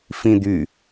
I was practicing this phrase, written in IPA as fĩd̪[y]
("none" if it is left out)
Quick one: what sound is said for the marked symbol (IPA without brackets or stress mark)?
y